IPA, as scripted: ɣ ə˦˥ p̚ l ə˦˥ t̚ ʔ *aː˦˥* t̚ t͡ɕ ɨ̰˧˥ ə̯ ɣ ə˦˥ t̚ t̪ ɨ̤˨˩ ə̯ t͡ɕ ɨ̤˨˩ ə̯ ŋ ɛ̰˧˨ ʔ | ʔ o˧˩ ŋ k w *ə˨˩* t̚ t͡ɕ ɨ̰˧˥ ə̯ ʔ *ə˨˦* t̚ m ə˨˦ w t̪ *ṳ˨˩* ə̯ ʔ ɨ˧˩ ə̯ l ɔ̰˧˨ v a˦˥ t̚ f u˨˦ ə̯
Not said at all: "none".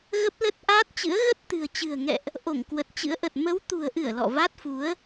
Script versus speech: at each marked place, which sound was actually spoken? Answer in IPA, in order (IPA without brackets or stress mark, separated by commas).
aː˦˥, ə˨˩, ə˨˩, ṳ˨˩